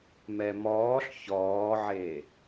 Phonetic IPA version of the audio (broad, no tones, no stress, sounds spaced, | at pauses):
m ɛ m ɔː ɬ ç ɔː ʕ e